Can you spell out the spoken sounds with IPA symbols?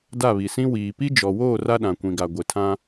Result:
d a˦˨ β i˨ s ĩ˦ w iː˨ p i˦ d͡ʒ ɔ˨ w oː˦˨ r a˦ ɗ ã˨ kʷ ĩ˨ ɡ a˨ ɡʷ e˨ tʰ ã˦

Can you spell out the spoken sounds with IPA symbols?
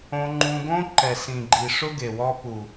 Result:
õ˧ ŋ͡ǃ ũ˧ ɡ õ˦ ǃ ɛ˨ s ĩ˨ ɡ͡ǃ i˨ ʂ ʊ˦ ɡ e˨ w ɔ˧ p u˨

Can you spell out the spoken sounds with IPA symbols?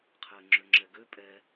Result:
qʰ ɘː ŋ͡ǁ ø ŋ͡ǁ ɛ ɡ ø pʼ ɛ

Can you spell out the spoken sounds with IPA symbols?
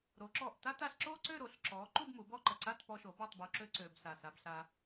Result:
ɾ o˩˧ ǁ ɔ˧˩ ʔ t a˥ t a˧ ɬ ǁ o˥ ǀ ø˥˧ ɾ o˩˧ ɬ ǁ ɔ˩˧ ǃ u˥˧ b m u˩˧ b ɔ˥˧ ǃ ə˧˩ ǀ a˥˧ t p ɔ˧ ʃ o˩˧ b ɔ˥˧ tˤ b u˧ ǁ ø˥ ǀ ø˧ b s a˧˩ s a˧ b ɬ a˧

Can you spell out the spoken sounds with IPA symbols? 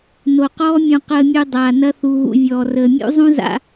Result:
n o˨ q ɔː˦ mʲ ũ˨ q əː˨ mʲ u˨ dˤ aː˨ n ɐ˦ θ u˨ ɣ ṵ˨ vʲ ɔː˨ r əː˨ mʲ ṵ˦ zˤ ũ˦ z a̰˨

